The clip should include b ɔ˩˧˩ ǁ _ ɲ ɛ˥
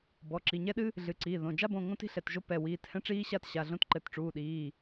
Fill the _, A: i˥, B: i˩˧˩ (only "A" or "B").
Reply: B